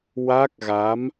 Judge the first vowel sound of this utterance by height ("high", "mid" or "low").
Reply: low